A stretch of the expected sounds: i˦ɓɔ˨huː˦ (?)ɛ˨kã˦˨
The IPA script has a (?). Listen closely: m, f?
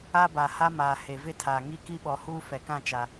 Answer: f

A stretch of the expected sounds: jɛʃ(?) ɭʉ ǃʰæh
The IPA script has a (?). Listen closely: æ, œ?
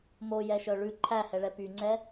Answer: œ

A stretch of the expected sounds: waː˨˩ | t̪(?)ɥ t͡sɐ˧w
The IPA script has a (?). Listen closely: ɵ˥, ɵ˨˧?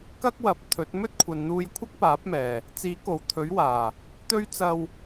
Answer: ɵ˥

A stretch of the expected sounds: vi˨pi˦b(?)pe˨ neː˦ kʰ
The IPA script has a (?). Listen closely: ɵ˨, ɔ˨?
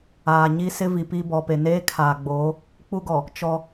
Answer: ɔ˨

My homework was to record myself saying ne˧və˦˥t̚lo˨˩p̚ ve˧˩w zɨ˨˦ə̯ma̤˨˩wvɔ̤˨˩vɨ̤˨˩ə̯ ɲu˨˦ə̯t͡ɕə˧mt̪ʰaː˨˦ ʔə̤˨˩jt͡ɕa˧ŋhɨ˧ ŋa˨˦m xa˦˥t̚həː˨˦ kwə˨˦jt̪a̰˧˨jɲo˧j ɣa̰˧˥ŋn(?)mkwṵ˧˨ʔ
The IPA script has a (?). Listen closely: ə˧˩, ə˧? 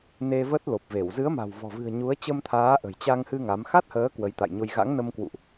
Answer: ə˧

